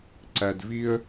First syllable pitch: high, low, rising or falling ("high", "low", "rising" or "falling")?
low